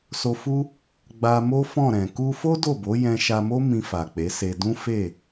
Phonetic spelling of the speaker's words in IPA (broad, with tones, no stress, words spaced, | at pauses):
so˧fu˦ | ɡ͡ba˧mo˦fɔ̃˦˨ɾɛ̃˨ ku˧fo˦ do˦˨bo˨˦ jɛ̃˧ʃa˧mo˦ mĩ˧fa˨k͡pe˨˦ se˧ dũ˦fe˦˨